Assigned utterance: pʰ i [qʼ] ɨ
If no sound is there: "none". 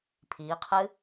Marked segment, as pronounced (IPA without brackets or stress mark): qʰ